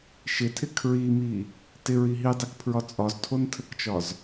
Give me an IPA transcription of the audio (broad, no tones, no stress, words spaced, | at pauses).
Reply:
ʃɪtʰɪ kʰɹimi | tɪɹi ɦidˤikpʰɹɒ t͡sʼɒztʰontʰəkt͡ʃɒz